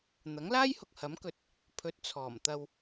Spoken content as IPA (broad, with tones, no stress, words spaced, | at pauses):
n̪ɐ˨˥ŋlaː˥jhʊ˨k̚ hɐ˨˥mkɵ˨t̚ | pʰɵ˨˥t̚ t͡sʰɔː˨˩mt̪ɐ˧w